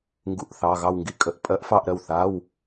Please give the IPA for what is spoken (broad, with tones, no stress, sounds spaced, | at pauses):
ŋ ɡ ṵ˥˧ ʔ θ ɑ˧˥˧ ɣ ɑ˥˧ w ŋ ɡ i˥˧ kʼ ə˧˥˧ ʔ pʼ ɜ˦˥ ʔ f ɑ˥˧ ʔ ɾ ɜ˥˩ w θ a˧˥˧ w